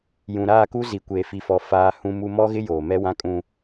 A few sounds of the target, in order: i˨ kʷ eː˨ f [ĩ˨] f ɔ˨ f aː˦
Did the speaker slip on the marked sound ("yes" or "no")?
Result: yes